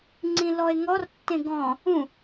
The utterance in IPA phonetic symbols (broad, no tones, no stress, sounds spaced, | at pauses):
ŋ͡ǀ ĩ l ɔ e̯ ŋ ɔ r tː ẽ ɡ ɔ̃ | ũ